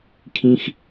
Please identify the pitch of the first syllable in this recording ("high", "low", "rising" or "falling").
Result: high